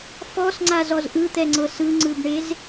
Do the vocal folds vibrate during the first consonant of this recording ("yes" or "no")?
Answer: no